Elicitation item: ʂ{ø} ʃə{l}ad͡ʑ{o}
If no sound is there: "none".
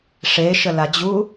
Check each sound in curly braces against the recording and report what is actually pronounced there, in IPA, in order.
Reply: e, l, u

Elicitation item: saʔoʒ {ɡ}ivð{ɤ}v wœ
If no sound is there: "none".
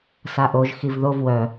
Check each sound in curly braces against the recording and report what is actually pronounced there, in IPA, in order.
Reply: x, o

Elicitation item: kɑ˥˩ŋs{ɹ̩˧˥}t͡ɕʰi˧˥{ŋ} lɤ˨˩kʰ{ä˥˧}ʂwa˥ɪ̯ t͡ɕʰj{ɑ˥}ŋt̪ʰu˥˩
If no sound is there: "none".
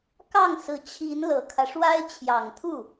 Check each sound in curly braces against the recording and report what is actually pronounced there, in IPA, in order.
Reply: ɹ̩˧˥, n, ä˦, ɑ˨˩

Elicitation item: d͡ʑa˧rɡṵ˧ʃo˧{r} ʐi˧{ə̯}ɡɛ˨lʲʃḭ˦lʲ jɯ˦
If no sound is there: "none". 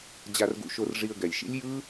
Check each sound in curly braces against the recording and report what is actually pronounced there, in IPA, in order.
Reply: r, ə̯

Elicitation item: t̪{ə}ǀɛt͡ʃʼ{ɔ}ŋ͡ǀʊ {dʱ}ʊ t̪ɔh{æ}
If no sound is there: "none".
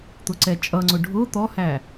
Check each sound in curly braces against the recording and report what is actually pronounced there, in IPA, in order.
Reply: ʊ, ʌ, ɖʱ, æ

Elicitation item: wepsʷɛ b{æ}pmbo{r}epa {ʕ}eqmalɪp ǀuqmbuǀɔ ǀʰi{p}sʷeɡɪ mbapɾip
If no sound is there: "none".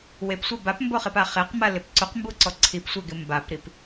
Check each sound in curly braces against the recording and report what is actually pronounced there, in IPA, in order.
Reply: a, χ, χ, p

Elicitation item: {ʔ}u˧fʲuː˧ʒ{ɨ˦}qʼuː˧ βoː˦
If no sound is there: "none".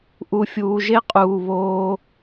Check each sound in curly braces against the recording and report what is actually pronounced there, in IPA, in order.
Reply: ʔ, e˦

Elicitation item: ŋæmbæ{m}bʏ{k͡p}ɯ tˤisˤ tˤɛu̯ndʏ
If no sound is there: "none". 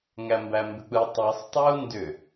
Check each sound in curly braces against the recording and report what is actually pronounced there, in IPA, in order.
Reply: m, k͡p

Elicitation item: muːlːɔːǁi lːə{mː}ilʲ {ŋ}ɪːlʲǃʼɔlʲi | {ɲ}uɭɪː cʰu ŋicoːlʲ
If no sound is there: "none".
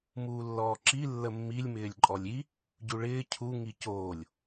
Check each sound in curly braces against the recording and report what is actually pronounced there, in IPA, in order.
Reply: mː, m, ɟ

